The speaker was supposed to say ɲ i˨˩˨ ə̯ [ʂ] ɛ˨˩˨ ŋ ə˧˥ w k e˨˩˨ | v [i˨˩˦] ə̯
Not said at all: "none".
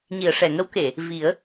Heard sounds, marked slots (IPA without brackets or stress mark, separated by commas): ʂ, i˨˩˦